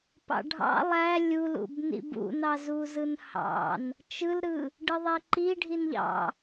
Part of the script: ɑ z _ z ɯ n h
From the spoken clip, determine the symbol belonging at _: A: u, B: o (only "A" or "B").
A